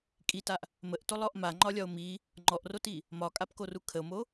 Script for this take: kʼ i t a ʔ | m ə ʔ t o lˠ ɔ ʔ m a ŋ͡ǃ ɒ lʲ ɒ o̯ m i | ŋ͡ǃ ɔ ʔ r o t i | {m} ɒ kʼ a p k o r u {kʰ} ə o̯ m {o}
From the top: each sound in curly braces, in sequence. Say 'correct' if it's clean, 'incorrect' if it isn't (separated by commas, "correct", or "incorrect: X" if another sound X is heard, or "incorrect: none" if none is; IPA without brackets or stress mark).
correct, correct, correct